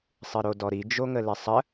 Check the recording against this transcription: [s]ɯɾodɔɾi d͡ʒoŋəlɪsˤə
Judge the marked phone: incorrect: sˤ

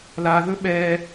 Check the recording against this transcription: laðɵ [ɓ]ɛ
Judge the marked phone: correct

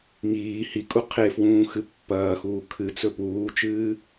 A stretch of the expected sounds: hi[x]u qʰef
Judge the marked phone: incorrect: kʼ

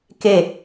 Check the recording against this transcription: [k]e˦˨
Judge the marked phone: correct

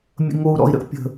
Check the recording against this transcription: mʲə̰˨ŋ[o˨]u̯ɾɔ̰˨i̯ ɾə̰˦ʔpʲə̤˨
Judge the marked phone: correct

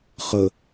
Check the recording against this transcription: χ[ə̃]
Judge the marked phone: incorrect: ə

